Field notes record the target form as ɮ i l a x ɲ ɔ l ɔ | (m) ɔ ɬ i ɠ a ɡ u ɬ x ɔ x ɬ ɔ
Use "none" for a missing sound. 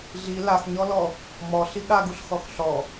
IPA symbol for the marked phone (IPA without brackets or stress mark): m